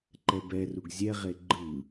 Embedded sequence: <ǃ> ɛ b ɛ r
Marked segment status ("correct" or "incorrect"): correct